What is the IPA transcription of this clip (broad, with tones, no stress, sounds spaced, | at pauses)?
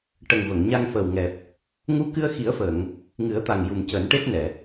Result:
ʈ ə˨˩ ŋ v ə˨˩˨ ŋ ɲ a˧ ŋ f əː˨˩ w ŋ ɛ˨˩ p̚ | ŋ u˧˥ k ɨ˧ ə̯ x i˨˩˦ ə̯ f əː˨˩˨ ŋ | ŋ ɨ˨˩˦ ə̯ t̪ a˨˩ ŋ j u˨˩ m c əː˨˩˦ n ʈ e˦˥ t̚ n ɛ˨˩˨